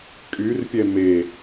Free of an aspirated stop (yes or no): yes